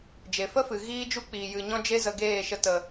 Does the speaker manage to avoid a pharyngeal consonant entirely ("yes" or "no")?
yes